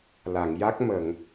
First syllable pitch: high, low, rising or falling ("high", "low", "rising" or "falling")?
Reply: low